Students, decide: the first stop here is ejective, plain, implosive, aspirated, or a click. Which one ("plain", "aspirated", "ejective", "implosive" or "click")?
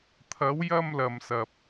aspirated